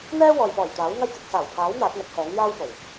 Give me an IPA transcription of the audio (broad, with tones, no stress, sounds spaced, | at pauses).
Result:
n̪ ɛː˥ w ɔː˨ j p ɔː˨˩ j t̪ aː˨˥ w ŋ ɐ˧ j k ɪ˨ k̚ s aː˨˩ w pʰ aː˨˥ w n̪ aː˨˥ t̚ ŋ ɐ˨˥ t̚ h ɛː˨˥ ŋ j aː˥ w f o˨˩ w